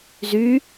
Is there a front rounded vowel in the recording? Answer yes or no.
yes